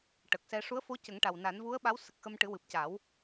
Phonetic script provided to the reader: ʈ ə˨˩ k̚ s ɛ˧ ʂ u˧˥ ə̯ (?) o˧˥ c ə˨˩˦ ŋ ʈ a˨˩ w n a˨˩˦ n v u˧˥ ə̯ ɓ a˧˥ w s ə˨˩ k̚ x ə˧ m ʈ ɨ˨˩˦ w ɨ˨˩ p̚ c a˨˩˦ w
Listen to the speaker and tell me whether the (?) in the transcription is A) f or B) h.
A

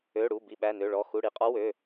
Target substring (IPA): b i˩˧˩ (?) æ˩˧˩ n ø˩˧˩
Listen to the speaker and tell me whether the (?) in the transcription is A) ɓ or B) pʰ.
A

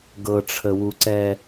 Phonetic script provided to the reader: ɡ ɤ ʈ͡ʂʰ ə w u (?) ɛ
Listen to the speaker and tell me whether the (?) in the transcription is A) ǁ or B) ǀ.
B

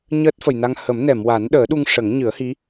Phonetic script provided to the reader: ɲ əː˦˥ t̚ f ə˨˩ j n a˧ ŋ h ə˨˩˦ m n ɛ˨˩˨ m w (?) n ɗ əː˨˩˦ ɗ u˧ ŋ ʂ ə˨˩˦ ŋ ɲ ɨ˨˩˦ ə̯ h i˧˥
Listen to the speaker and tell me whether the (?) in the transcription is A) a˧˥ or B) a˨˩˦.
B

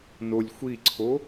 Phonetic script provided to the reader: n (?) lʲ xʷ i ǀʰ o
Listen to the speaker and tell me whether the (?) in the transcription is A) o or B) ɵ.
A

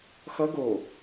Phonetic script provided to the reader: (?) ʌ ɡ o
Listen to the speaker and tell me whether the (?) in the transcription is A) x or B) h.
A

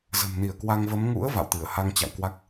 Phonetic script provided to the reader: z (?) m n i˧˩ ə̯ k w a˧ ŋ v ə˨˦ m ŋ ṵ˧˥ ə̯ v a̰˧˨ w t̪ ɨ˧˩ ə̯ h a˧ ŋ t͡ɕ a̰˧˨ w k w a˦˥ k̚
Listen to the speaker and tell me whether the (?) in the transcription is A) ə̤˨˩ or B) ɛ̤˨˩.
A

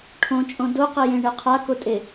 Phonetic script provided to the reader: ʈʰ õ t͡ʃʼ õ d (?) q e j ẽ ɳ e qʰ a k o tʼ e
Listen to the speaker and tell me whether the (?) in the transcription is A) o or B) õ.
A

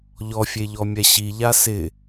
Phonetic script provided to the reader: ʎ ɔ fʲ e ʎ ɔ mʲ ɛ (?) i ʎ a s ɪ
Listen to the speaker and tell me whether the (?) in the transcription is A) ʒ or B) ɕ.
B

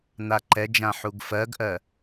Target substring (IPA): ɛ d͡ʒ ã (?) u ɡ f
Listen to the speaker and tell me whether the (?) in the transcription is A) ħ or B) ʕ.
A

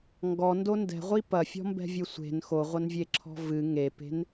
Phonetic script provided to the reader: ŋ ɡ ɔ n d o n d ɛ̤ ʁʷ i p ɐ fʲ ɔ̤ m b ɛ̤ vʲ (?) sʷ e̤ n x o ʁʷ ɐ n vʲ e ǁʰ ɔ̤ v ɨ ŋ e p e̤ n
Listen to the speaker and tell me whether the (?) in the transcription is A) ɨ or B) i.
A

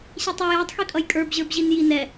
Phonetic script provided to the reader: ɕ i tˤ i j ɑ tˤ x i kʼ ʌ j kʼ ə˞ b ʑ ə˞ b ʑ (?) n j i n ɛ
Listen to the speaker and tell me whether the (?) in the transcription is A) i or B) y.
A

